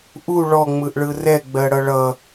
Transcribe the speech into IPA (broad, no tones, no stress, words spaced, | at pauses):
ʔu ɭɔŋ͡mɯʔɭɯ rɛɡ͡bɜɽʌ ɭʌ